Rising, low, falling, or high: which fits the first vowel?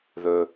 low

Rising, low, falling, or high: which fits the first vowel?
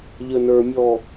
low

